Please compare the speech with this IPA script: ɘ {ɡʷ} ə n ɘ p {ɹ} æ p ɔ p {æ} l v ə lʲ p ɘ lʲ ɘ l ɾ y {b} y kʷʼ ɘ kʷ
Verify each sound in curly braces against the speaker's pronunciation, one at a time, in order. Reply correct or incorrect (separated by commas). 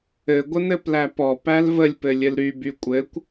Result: correct, incorrect, correct, correct